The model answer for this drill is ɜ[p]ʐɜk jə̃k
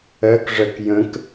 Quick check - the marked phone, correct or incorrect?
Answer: incorrect